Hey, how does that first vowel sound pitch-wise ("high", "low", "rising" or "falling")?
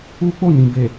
high